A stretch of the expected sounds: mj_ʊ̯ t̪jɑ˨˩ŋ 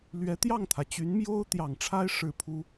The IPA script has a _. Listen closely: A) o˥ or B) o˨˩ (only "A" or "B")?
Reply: A